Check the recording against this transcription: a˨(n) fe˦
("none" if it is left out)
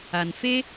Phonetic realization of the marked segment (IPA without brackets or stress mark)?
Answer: n